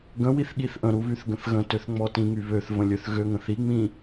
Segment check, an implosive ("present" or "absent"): present